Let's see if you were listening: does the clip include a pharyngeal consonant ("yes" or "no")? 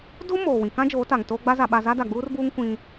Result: no